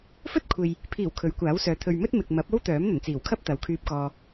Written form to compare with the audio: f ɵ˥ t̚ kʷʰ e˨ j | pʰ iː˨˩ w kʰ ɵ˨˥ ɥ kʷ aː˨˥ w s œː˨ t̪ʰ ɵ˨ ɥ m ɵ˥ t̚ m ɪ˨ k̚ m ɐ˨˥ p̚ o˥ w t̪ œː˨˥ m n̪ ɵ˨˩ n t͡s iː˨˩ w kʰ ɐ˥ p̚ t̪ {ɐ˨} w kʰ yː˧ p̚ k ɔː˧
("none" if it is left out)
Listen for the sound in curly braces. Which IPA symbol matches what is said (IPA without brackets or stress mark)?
ɐ˨